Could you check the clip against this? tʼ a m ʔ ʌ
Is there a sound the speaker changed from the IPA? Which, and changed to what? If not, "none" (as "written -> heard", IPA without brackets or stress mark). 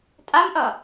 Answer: none